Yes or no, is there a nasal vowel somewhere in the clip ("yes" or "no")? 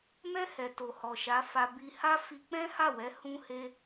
yes